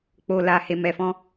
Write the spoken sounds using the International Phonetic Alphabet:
k͡p o˨ l a˨ h e˨ m ɛ˨ f ɔ̃˧

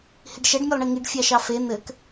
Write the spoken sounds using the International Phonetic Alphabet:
h i ɖ ʃ ɛ ɖ mʲ o lˠ ɳ i ŋ i ɖ fʲ ɑ ʃ ɑ f e n̪ ɘ k

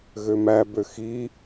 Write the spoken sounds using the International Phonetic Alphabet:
ɣ ø m æ b ø x i

